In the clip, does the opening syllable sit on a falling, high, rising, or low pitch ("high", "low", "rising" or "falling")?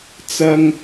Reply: high